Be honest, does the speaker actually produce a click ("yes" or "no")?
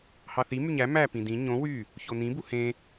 no